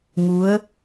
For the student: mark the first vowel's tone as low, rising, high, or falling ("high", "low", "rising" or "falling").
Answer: rising